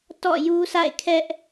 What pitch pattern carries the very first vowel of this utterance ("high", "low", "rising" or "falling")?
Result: falling